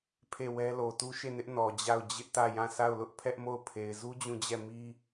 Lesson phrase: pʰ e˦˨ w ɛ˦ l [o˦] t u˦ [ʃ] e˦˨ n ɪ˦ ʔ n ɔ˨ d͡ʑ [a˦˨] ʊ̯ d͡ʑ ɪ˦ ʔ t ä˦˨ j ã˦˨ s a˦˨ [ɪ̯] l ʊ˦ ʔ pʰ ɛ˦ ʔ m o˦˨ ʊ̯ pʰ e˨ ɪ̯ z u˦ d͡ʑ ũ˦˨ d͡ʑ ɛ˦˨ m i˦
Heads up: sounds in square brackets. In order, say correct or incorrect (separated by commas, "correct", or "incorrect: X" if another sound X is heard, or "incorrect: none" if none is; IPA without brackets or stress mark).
incorrect: o˨, correct, correct, incorrect: ʊ̯